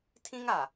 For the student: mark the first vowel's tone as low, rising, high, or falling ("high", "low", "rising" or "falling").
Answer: high